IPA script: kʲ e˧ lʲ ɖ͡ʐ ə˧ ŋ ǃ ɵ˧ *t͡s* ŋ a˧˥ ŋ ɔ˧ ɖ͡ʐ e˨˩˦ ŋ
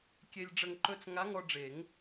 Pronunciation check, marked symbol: correct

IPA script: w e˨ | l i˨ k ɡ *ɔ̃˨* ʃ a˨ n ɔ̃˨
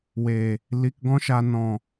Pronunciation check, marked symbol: incorrect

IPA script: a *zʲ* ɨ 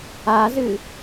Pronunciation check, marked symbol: incorrect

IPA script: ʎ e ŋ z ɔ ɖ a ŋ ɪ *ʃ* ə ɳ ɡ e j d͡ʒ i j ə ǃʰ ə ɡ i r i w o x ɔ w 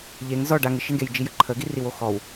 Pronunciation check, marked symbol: correct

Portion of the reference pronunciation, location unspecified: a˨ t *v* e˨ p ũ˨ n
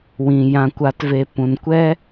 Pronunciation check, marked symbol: correct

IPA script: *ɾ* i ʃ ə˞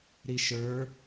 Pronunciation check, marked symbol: correct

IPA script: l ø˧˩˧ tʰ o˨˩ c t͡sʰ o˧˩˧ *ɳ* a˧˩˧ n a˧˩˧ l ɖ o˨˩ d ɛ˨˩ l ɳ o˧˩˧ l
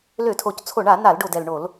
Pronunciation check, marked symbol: correct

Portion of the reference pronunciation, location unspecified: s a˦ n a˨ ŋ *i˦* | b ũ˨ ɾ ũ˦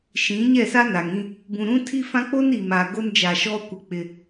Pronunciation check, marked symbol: incorrect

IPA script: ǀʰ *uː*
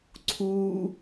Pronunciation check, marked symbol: correct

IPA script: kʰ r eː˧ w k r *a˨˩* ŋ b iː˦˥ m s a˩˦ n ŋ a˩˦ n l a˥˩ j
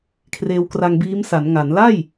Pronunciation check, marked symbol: incorrect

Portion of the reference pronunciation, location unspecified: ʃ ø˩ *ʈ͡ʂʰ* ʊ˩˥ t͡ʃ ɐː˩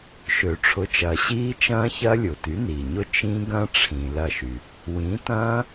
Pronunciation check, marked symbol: correct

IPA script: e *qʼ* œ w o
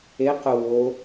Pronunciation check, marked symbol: incorrect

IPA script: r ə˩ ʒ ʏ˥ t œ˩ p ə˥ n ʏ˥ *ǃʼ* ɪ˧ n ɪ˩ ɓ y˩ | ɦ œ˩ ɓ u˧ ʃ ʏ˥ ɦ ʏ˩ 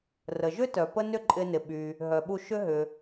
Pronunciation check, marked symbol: correct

